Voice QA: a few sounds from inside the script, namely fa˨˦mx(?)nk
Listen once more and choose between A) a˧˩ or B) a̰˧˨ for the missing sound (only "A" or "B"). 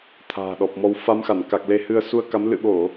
A